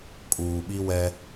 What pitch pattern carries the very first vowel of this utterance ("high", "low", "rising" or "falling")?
low